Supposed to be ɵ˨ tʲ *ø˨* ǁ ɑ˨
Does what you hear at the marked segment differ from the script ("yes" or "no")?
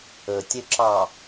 yes